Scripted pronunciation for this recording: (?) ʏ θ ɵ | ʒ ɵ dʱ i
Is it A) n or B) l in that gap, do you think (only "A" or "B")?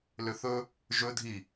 B